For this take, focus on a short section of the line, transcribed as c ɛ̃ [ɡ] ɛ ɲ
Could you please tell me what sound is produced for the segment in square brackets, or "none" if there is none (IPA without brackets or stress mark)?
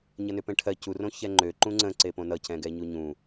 ɡ